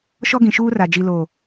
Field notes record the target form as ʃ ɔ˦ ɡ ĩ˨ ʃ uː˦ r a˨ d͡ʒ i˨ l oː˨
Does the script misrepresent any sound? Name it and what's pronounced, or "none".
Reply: none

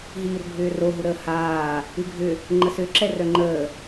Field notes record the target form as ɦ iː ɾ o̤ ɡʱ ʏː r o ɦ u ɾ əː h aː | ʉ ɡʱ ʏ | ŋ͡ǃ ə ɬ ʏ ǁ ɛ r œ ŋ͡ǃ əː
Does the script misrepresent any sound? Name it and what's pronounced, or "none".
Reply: ɬ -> s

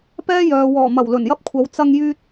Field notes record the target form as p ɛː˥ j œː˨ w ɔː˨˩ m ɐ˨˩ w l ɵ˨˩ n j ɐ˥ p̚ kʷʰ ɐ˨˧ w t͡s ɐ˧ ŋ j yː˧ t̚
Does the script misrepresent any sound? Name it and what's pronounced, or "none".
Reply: none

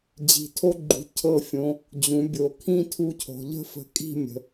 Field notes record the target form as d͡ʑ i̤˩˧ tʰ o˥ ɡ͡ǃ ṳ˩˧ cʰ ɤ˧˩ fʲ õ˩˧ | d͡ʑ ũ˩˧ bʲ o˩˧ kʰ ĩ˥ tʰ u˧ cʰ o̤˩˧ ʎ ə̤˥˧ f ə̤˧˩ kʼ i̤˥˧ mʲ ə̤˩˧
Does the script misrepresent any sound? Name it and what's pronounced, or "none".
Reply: none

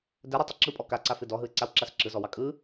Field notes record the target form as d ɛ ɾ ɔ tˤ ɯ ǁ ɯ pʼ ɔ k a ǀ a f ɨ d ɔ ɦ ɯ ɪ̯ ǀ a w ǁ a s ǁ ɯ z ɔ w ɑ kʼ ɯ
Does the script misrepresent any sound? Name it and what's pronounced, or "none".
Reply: none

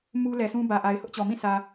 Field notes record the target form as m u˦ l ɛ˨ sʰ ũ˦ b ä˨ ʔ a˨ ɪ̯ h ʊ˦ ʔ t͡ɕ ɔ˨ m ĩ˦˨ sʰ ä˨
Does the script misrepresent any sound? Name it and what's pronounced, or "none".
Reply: none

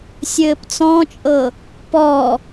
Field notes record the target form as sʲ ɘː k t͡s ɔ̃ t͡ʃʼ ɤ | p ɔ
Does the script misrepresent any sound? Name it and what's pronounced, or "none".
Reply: k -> p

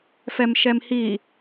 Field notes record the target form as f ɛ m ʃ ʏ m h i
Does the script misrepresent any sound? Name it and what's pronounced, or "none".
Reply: ʏ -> ɛ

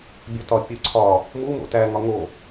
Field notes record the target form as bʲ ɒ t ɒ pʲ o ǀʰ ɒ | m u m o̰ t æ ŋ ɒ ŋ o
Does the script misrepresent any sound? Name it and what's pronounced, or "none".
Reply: none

